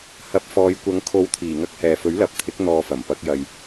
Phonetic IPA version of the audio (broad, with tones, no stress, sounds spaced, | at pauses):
h ɐ˨˥ p̚ f ɔː˨˧ j kʷ ɐ˨˧ ŋ kʰ o˨˥ w t̪ʰ iː˨˩ ŋ ɐ˧ k̚ h ɛː˨ f ɵ˨˥ ɥ l ɐ˨˥ p̚ t̪ʰ ɪ˨˥ k̚ n̪ ɔː˨ f ɐ˨˩ m p ɐ˨˥ k̚ j ɐ˨ j